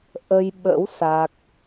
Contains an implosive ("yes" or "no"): yes